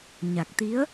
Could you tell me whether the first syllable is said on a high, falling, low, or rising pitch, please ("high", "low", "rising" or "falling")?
low